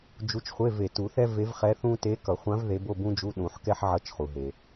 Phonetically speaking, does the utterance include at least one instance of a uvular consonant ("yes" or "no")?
yes